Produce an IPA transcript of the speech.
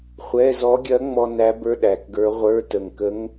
χʷ ɛ˧˥˧ z ɔ˧˥ ɡʲ ɐ˧˥ ŋ͡m ɔ˧ n æ˧˥ b ə˞˧˥˧ ɗ æ˨˩ k ɡ ə˞˧˥ ʁʷ ə˞˧˥˧ t ə˨˩ ŋ k ə˧˥ ŋ

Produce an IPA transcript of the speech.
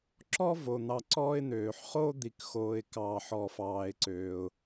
ǁ ɔ˥ v o˩ n̪ ɑ˨ ǀ ɔː˦ ɪ̯ n̪ øː˩ ħ χ o˥ d̪ i˨ k x oː˨ ɪ̯ k ɑː˨ ħ ɔ˨ f ɑː˨ ɪ̯ ǀ øː˩ ʊ̯

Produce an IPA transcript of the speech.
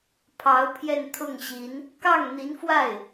pʰ ɑ˧˥ ʊ̯ pʰ j ɛ˥˧ n t̪ʰ ʊ˥˩ ŋ ɕ i˧˥ n | k ɑ˥˩ ŋ n̪ i˧˥ n f w a˥˩ ɪ̯

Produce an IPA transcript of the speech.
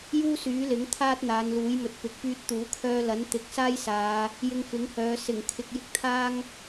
j uː˥ s yː˨˥ l ɪ˨˥ ŋ t̪ʰ aː˥ t̚ n̪ aː˨˧ n l uː˨˥ j m ɵ˨ t̚ p ɪ˨ k̚ p yː˧ t̚ t̪ uː˨˥ kʰ œː˧ l ɐ˨˥ n t̪ ɪ˨˥ k̚ s aː˥ j s aː˨˧ | j ɪ˧ ŋ f ɪ˨˥ ŋ h œː˨˧ s ɪ˨˩ ŋ kʰ ɪ˨ k̚ j ɪ˧ k̚ t̪ʰ aː˥ ŋ

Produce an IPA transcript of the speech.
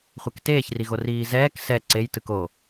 χʷ ɛ k t eː ç r i ɣ o r iː z ɛː k s ɛ ǀ e j t ɯ k o

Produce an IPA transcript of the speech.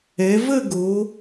ɛ˩˧ v ə˥˧ ɡ o˩˧

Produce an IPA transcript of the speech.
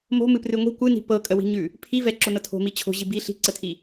m o̤ m ɨ p r ɨ ŋʷ i̤ kʷ ɨ n i̤ p ɤ kʼ ə w i̤ ɲ ʉ | pʰ i v ɛ ǁ o n ɤ tʰ o̤ m i t͡ɕʰ o̤ ʑ i b i ɬ i̤ ǀ ə tʰ i

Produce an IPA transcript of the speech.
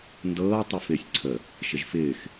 n d ɤː tˤ i f ɪː sʲ ǀʰ ə | ʃ ɪ ʒ f ɪː x

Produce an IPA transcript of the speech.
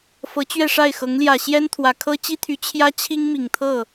f ɤ˧˥ t͡ɕ ɥ ɛ˥˧ ʂ a˥˩ ɪ̯ x ɤ˧˥ ŋ l j ä˨˩ ɕ j ɛ˥ n t̪ʰ w ä˨˩ kʰ ɤ˥ t͡ɕ i˥ t̪ʰ y˧˥ t͡ɕʰ j ä˥ t͡ɕʰ i˥ ŋ m i˨˩ ŋ t̪ʰ ɤ˥˩

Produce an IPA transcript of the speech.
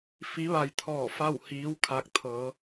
f i˧˥ ʋ a˧ j t̪ʰ ɔː˧˩ f a˥˨ w h iː˧˥ w kʰ a˧ k̚ t̪ʰ ɤː˩˧

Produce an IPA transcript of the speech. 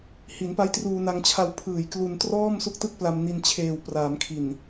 h i˩˦ n p a˦˥ j t r uː˧ n a˧ ŋ t͡ɕʰ a˧ w pʰ ɯː˨˩ j k l u˧ n t r ɔː˥˩ m s u˦˥ k̚ t ɯ˥˩ k̚ p l a˧ m n i˧ n t͡ɕʰ eː˨˩ w p r aː˩˦ m kʰ i˨˩ n

